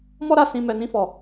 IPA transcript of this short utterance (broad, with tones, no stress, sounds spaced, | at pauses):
m ɔ˦ ɾ a˦˨ s ĩ˧ m ɛ˧ n ĩ˦ f ɔ˦˨